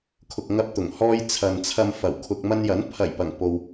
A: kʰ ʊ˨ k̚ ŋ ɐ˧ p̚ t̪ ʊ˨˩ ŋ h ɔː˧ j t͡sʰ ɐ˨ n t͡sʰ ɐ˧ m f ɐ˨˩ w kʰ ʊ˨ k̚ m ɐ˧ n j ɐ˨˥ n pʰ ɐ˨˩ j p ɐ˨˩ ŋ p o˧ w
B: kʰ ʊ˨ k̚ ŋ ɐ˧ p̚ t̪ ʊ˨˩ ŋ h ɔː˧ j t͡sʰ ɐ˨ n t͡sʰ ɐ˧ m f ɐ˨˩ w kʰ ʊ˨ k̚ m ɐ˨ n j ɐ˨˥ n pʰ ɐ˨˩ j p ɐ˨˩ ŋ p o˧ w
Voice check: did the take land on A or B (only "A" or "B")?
A